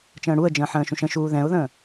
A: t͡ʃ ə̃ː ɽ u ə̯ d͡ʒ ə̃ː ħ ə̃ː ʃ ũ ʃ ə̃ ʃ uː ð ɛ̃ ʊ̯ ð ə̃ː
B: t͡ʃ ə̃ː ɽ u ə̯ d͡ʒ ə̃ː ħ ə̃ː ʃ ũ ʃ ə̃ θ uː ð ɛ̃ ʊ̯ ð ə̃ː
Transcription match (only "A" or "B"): A